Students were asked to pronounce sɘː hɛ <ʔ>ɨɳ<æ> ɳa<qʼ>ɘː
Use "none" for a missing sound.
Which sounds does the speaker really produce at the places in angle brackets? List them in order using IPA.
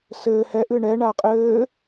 ʔ, ɛ, qʼ

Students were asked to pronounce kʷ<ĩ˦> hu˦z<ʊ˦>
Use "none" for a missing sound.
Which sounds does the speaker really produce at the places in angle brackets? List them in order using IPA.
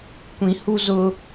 ĩ˦, ʊ˦

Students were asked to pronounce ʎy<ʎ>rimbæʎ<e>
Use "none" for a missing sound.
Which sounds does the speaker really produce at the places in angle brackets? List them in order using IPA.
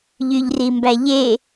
ʎ, e

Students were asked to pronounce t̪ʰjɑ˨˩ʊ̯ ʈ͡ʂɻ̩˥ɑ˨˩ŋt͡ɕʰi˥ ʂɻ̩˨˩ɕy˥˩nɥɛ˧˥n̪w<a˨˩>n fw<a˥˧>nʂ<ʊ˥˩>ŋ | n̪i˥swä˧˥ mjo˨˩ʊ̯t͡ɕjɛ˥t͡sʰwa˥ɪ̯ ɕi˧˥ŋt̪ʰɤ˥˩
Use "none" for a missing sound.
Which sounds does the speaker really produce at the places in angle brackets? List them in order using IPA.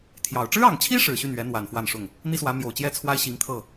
a˨˩, a˥˧, ʊ˥˩

